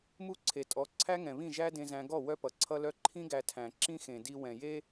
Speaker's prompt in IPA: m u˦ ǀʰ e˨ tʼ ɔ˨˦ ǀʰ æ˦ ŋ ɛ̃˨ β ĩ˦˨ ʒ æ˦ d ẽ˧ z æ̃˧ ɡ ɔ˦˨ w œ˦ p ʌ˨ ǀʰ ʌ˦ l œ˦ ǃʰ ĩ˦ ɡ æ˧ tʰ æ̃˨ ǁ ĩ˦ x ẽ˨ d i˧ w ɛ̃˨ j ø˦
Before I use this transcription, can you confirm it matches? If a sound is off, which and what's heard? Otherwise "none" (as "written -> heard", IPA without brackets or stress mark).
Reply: ø˦ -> e˦